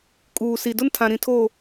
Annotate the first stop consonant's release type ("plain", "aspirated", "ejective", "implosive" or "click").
ejective